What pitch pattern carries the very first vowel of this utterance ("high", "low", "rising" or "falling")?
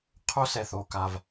high